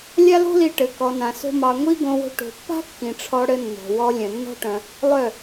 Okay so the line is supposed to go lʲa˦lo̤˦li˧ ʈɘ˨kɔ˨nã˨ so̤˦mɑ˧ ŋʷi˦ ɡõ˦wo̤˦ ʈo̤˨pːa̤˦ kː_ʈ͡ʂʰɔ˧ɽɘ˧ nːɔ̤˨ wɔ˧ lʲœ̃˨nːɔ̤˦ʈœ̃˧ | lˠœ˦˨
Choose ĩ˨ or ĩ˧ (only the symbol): ĩ˨